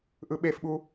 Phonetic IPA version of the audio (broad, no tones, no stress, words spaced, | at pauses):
ʔɯɓefɓu